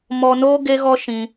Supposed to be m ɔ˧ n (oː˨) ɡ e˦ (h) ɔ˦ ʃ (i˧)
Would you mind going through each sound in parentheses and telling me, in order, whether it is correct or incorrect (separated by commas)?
incorrect, incorrect, incorrect